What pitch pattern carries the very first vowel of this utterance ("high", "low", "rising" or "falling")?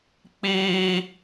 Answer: high